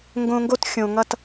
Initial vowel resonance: nasal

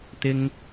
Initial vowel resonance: oral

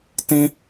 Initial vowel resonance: nasal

